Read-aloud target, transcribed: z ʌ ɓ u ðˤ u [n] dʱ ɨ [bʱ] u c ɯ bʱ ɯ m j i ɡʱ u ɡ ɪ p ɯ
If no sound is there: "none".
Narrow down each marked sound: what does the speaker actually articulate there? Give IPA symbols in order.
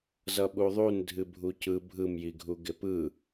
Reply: n, bʱ

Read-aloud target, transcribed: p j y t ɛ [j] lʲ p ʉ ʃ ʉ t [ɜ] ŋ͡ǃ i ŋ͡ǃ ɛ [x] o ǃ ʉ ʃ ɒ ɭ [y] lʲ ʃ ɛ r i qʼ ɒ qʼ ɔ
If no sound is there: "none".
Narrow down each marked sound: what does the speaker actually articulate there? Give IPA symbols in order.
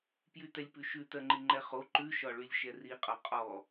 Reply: none, ɜ, χ, y

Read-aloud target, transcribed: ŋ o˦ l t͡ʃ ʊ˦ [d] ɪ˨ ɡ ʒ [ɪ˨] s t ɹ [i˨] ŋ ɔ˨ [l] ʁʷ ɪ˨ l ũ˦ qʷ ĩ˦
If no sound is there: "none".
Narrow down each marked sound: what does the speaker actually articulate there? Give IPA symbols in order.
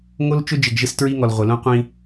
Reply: d͡ʒ, ɪ˦, i˦, l

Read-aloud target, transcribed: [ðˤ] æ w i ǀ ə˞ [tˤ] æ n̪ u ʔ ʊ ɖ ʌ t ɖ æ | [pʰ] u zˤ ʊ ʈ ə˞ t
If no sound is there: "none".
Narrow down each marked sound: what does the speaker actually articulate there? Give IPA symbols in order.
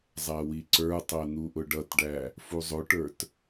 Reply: zˤ, tˤ, f

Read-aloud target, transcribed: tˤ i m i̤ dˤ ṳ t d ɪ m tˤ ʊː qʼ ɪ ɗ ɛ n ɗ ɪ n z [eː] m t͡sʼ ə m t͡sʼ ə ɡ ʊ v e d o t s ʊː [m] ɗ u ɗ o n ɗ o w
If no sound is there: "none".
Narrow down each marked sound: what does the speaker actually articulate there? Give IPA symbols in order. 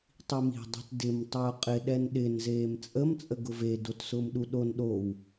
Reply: eː, m

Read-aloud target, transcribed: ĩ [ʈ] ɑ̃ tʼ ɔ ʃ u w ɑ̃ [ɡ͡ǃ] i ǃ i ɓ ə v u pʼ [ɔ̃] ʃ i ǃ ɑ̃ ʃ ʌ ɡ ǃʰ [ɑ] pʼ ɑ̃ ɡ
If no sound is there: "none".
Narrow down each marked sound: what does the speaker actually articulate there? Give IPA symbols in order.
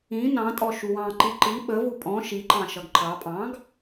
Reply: n, ǃ, ɔ̃, ɑ

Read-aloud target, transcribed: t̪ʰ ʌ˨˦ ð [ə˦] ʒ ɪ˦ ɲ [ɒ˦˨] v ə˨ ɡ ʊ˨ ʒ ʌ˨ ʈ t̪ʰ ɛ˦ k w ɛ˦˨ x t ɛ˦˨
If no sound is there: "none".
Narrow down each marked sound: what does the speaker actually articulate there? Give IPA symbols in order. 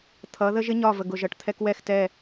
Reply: ə˦, ɒ˦˨

